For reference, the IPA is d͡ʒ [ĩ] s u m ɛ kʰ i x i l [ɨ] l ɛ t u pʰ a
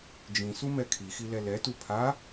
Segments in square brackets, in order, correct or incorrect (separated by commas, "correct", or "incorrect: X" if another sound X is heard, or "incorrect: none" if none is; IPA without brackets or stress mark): correct, incorrect: ɛ